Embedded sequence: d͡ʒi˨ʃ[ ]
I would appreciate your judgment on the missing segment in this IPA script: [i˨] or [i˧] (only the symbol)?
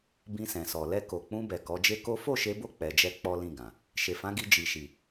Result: i˨